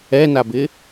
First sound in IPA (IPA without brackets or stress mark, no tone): ɛ